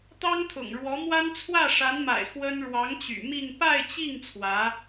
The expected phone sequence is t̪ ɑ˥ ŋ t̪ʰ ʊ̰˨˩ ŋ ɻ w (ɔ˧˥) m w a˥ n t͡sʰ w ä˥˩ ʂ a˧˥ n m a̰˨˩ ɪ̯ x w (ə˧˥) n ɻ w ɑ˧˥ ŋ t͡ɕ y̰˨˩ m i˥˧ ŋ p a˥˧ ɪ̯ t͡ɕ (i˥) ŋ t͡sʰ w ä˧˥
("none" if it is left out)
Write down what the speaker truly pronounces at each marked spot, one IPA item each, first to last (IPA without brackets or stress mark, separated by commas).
ɔ˧˥, ə˥, i˥˩